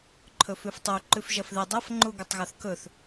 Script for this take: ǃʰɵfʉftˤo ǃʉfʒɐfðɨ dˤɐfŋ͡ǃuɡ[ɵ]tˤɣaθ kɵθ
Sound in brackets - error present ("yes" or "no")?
no